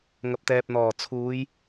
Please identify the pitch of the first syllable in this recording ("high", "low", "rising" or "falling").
low